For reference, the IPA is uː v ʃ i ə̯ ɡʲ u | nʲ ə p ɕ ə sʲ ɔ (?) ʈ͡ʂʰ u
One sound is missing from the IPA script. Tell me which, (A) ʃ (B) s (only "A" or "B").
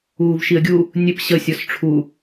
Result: B